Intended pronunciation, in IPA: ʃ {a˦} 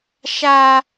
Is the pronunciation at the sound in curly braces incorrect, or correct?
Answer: correct